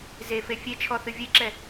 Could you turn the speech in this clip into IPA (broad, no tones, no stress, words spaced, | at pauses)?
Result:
zefe fʲet͡ʃʰɔθɨ vʲeǁɛ